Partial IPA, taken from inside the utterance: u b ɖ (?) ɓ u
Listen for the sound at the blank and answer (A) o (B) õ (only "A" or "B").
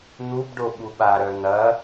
A